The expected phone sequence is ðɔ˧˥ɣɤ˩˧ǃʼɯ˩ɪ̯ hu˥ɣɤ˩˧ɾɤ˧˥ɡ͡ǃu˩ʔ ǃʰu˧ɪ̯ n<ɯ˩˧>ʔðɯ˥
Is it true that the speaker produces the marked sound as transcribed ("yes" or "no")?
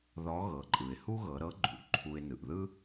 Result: no